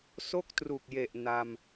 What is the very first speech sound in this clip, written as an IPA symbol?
s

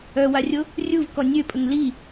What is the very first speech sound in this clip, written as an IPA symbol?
œ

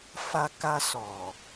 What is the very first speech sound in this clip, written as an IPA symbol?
f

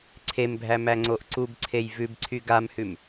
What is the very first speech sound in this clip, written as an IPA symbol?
ǀʰ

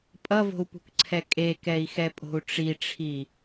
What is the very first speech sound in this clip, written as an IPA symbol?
pʼ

